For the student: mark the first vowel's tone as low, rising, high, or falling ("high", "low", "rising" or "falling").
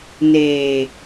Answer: low